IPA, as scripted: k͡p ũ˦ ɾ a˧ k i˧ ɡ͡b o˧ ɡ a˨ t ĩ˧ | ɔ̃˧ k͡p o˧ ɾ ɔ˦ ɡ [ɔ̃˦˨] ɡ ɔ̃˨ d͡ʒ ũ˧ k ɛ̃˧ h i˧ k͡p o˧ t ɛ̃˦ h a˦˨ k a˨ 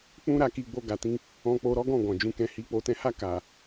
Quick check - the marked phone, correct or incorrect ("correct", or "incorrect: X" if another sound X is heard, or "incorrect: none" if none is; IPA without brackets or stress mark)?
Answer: correct